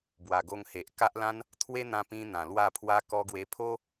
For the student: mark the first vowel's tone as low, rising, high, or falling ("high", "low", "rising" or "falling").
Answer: low